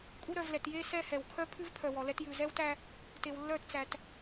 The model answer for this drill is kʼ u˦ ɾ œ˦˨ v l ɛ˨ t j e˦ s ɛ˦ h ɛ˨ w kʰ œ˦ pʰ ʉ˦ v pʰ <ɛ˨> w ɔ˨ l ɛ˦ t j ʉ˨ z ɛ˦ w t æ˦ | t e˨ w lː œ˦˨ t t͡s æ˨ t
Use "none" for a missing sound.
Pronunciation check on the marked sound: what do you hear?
œ˨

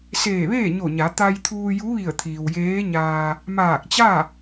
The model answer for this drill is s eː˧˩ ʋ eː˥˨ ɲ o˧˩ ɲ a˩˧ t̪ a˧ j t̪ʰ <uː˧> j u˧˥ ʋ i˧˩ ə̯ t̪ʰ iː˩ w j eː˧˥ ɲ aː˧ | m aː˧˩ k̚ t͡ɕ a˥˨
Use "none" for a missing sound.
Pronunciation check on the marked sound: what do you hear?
uː˧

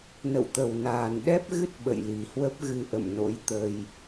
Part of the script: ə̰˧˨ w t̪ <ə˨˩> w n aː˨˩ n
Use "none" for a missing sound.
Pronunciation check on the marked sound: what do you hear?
ə˨˩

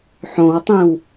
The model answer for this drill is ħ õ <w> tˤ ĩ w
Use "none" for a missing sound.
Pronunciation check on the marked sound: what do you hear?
w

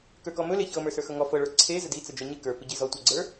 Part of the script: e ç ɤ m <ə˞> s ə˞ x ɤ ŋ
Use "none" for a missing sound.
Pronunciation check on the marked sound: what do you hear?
ə˞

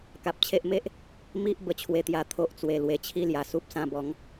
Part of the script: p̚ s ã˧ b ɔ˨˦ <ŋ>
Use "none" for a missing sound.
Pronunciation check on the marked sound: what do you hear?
ŋ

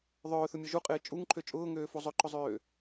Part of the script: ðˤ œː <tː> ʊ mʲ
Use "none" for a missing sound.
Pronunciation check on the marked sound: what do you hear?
θ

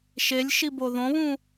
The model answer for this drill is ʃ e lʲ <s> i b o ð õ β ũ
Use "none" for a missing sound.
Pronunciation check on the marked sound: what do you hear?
ʃ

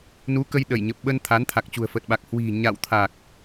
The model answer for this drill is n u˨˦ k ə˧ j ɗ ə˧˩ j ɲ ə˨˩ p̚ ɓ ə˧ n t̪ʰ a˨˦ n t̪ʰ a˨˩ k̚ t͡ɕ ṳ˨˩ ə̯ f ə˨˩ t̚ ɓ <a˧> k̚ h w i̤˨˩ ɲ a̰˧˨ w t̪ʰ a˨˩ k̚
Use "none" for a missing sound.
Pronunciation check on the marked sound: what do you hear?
a˨˩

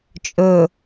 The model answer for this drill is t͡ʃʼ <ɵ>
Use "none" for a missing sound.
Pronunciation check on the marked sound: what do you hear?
ɵ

